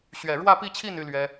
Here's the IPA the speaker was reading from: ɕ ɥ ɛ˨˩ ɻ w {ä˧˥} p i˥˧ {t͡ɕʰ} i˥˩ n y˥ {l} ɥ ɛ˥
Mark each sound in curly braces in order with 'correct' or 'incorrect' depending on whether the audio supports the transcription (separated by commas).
incorrect, correct, correct